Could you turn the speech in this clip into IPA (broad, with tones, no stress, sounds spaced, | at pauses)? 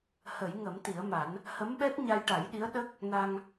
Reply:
h ə˨˩˦ j ŋ ə˨˩˦ m t̪ i˨˩˦ ə̯ m a˨˩˦ n | h ə˧˥ m ɓ ɛ˦˥ t̚ ɲ a˧ j ʈ a˨˩˦ j ɗ i˧˥ ə̯ ɗ ə˦˥ k̚ | n a˧ ŋ